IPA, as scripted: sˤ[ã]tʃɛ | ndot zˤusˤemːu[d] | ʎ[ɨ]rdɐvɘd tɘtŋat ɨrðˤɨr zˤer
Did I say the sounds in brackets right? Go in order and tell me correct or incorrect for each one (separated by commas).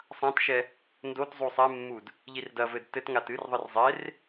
correct, correct, incorrect